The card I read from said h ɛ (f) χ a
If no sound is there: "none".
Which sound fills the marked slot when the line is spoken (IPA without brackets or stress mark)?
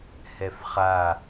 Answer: f